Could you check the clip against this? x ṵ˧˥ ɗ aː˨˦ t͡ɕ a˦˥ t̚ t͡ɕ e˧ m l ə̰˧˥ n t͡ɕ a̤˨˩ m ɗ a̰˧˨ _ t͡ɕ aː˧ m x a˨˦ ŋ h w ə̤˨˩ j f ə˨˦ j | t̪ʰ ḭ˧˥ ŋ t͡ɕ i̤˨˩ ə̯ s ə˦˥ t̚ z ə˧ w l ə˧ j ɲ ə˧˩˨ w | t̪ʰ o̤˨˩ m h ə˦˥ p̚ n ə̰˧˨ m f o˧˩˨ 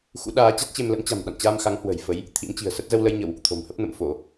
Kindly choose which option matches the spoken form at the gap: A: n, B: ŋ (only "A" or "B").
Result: A